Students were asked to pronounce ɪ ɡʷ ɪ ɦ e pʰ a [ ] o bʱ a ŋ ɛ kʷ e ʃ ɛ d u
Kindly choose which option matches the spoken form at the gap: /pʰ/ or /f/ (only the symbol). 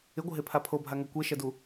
pʰ